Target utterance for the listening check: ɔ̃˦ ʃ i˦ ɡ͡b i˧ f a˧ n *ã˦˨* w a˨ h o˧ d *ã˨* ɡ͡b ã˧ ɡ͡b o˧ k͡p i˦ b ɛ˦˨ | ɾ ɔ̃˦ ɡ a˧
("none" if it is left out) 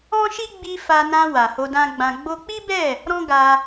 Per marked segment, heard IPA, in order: ã˧, ã˦

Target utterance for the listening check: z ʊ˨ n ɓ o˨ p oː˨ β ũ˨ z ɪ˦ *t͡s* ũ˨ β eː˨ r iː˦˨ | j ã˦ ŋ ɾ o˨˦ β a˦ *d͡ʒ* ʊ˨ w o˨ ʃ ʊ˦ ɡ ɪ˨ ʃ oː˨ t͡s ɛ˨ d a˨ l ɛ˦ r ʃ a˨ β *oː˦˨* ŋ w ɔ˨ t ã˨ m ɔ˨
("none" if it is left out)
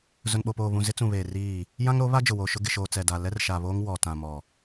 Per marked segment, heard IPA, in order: t͡s, d͡ʒ, oː˦

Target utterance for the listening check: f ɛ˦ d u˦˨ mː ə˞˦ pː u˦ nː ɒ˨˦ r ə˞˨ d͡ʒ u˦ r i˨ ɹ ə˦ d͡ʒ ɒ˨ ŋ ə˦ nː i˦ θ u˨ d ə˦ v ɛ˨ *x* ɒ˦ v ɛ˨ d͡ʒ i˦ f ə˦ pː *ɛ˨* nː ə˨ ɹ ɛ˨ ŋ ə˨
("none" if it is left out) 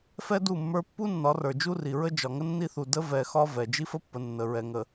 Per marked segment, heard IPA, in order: x, ə˨

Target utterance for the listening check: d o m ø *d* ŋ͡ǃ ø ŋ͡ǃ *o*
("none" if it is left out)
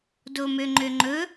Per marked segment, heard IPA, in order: none, ɵ

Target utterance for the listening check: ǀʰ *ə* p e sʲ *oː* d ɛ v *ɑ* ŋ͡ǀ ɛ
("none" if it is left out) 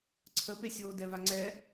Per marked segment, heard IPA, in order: ə, oː, a

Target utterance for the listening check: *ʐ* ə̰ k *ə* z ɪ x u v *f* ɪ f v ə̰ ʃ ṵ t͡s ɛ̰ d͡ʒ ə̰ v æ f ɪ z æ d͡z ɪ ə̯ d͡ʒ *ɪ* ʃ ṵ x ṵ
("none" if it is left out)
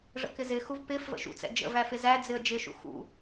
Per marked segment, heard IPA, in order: ʐ, ɪ, p, ɪ

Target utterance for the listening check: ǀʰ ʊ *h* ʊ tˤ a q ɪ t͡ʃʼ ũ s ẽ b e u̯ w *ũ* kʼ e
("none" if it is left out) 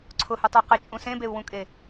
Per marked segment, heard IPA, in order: h, ũ

